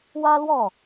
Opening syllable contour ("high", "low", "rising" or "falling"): high